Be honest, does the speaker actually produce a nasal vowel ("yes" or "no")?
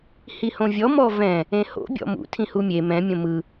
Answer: yes